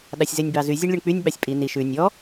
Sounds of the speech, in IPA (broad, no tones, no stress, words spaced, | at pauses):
ɗɑsʲzenʲbɑzy zʲɛɳlʲuɳk͡pynʲ ɓɑsʲpʼi ni ʃʉ nʲɔ